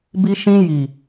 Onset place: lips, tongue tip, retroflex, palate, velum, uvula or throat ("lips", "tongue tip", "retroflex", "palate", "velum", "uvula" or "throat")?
lips